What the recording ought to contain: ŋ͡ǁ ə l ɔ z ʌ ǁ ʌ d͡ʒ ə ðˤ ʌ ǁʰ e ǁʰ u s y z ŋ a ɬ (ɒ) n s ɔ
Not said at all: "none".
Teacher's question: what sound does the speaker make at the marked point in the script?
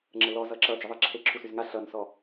ʌ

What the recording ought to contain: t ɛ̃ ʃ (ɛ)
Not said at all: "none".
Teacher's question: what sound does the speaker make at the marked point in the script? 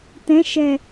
ɛ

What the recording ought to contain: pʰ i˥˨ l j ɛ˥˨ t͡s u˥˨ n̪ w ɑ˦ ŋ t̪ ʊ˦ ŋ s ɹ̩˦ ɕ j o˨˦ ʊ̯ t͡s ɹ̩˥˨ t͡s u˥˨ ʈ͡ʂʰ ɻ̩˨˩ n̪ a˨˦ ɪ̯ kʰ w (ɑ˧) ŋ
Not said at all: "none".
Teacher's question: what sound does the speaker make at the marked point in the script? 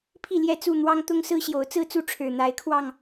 ɑ˧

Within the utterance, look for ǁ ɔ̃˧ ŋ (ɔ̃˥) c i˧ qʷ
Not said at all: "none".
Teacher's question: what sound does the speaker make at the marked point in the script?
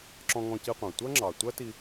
ɔ̃˧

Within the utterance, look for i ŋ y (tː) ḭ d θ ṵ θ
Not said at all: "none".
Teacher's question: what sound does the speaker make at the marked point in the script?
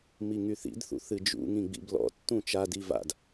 θ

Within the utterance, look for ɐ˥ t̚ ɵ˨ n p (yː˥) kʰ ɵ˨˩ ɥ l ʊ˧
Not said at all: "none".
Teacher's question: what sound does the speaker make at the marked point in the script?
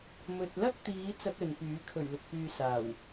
yː˨˥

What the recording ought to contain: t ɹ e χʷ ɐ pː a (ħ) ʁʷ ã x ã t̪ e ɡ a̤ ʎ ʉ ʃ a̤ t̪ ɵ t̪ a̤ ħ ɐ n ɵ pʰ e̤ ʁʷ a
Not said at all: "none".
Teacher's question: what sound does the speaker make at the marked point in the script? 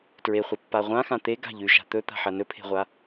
none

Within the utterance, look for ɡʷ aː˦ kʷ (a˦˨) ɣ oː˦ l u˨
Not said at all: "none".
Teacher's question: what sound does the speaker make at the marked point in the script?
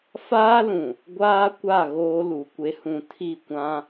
a˦˨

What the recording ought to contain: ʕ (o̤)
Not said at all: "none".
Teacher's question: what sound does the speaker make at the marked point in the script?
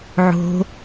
o̤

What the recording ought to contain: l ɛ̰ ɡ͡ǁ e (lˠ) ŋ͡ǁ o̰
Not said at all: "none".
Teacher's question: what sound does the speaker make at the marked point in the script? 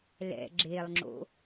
lˠ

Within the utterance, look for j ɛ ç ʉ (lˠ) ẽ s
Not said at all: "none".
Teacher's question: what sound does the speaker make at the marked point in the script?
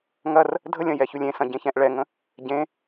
lʲ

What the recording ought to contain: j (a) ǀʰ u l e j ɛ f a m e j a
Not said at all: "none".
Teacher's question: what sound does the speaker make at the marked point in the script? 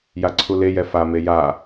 a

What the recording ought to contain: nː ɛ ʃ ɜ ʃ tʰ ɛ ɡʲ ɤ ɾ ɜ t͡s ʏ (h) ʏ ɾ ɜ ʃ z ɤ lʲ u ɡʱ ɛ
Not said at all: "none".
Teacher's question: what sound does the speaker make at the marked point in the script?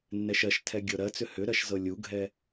h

